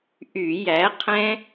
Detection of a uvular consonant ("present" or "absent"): present